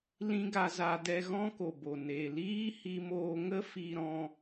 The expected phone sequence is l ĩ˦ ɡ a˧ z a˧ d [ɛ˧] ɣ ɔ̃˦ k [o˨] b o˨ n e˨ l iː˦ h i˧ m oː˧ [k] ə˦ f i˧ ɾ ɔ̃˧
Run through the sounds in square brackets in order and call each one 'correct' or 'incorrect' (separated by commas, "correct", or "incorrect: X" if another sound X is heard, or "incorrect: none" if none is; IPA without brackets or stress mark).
correct, correct, incorrect: ŋ